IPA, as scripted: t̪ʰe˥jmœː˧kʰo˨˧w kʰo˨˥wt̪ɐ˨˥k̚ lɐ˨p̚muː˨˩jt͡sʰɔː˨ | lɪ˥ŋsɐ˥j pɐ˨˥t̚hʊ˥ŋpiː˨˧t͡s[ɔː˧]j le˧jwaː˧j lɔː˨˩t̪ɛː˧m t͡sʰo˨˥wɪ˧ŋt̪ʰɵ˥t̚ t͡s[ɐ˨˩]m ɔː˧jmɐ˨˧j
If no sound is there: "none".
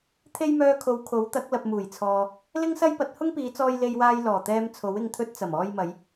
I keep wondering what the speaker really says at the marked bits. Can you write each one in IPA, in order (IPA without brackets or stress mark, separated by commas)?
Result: ɔː˧, ɐ˨˩